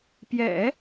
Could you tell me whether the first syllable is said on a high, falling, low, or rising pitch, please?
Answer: low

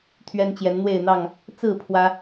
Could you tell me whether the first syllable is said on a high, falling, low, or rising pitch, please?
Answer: high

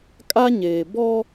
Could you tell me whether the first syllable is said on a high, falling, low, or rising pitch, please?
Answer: high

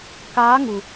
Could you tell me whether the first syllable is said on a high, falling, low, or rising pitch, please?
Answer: rising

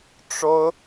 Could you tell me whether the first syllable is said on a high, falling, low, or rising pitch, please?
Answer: high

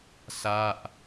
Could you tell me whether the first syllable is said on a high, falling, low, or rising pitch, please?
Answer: falling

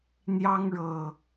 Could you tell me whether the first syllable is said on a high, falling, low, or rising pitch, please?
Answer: high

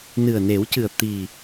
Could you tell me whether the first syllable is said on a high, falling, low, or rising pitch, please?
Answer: low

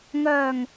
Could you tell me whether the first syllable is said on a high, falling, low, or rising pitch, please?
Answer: low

